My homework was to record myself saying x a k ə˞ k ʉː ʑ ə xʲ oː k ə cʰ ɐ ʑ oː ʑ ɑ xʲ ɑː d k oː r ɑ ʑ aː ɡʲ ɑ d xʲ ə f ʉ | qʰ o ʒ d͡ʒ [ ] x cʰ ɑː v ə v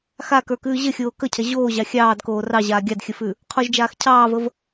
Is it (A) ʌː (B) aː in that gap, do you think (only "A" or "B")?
B